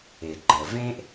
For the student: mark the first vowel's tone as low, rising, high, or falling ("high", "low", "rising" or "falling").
low